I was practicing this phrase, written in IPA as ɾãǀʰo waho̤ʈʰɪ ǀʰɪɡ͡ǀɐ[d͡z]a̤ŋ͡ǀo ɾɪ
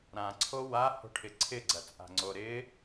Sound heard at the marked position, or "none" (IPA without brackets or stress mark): t͡sʼ